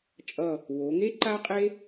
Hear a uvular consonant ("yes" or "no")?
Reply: yes